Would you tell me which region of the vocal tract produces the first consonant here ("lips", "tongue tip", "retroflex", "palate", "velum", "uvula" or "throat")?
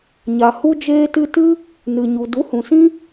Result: palate